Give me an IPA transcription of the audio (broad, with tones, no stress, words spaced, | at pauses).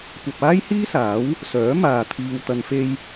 kʷɐ˧p̚aː˥jhiː˥saː˨˥w | sœː˨˥maː˨ t̪ʰiː˨wt̪ɐ˨nfe˧j